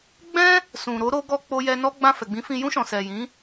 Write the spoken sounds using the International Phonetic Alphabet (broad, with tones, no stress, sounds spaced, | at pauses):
ɡ͡b ɛ̃˦ | s ũ˨ ɾ o˧ ɾ o˧ ɡ ɔ˧ k͡p o˧ j ɛ˧ n ɔ˦ ɡ͡b ã˦˨ f ɛ˨ ɡ͡b ĩ˨˦ f ĩ˧ j ũ˧ ʃ ɔ̃˨ s ɛ˨ j ĩ˨˦